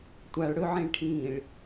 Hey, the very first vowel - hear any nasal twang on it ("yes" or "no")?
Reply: no